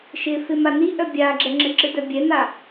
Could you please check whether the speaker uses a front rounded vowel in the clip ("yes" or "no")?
yes